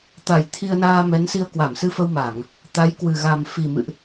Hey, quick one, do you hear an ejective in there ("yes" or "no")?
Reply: no